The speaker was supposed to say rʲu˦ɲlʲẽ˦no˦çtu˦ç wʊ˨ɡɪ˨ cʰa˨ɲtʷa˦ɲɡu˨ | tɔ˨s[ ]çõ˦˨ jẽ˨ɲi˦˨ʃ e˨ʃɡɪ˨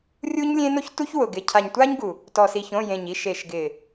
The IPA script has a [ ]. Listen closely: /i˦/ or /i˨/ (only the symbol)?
i˨